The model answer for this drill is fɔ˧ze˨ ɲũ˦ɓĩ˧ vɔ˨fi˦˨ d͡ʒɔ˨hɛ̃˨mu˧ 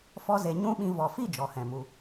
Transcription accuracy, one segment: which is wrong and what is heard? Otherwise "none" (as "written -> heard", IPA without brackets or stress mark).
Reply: none